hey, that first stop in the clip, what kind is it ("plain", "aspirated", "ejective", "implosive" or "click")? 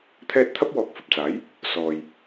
aspirated